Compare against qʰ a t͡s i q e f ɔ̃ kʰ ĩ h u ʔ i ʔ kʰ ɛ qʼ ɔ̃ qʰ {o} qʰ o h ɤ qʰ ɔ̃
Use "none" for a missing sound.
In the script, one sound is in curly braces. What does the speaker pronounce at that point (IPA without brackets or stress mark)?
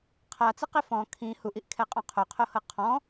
o